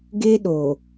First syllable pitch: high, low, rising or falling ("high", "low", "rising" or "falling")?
high